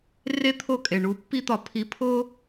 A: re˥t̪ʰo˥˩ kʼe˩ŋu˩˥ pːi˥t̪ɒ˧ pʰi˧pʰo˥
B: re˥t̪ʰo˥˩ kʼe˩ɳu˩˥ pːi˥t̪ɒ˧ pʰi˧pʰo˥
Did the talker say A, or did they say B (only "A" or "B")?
B